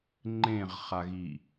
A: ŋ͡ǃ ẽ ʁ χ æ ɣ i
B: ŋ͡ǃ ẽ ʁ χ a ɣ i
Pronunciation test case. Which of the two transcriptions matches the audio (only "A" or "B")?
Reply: B